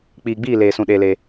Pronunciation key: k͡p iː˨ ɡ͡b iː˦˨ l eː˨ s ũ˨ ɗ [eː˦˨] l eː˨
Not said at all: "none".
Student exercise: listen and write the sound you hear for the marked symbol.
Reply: eː˨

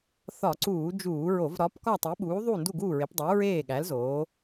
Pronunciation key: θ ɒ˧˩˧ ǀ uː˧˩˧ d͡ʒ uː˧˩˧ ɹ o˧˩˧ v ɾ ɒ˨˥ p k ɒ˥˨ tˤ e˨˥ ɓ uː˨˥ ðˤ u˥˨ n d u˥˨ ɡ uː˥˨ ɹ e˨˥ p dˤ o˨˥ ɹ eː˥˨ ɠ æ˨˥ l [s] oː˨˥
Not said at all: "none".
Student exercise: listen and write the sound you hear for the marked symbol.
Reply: z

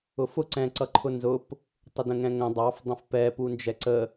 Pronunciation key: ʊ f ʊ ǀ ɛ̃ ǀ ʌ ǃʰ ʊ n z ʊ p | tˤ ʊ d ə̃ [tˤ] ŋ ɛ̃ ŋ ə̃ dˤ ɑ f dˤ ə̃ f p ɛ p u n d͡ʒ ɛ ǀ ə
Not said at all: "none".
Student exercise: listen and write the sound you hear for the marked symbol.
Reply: none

